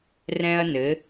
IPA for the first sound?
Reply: r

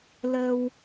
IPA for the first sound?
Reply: l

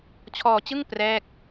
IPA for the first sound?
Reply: t͡ɕʰ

